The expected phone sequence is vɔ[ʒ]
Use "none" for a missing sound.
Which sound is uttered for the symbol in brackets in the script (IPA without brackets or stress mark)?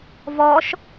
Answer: ʃ